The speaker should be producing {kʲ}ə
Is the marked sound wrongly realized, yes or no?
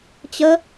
yes